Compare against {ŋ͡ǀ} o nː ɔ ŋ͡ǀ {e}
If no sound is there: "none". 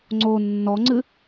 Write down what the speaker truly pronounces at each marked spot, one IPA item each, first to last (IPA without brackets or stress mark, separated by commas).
ŋ͡ǀ, ɨ